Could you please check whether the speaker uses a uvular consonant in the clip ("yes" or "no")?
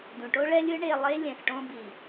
no